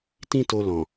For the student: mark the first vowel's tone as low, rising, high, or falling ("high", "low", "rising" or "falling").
high